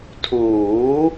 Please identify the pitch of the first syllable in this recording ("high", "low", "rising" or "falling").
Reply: rising